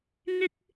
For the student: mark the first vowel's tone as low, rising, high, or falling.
low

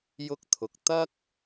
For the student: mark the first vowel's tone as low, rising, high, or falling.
high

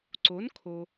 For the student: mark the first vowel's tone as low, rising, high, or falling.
rising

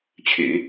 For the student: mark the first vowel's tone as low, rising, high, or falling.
low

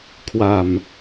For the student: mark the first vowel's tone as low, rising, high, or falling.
low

